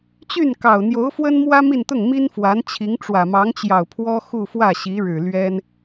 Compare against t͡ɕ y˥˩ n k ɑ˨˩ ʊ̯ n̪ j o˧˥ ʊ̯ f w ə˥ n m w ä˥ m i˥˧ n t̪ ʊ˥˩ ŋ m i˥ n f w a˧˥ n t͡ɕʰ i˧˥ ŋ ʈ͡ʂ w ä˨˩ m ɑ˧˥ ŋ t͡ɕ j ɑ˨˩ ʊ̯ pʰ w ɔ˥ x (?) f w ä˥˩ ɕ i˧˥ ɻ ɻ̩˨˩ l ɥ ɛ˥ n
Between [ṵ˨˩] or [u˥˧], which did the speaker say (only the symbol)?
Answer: u˥˧